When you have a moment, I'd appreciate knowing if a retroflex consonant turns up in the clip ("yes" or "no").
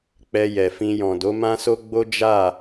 no